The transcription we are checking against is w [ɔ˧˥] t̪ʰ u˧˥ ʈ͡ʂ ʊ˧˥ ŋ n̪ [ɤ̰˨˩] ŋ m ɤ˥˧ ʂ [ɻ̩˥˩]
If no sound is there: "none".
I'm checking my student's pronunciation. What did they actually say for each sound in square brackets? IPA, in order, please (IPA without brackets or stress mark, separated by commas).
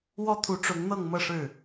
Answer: ɔ˥, ɤ˥˧, ɻ̩˥˩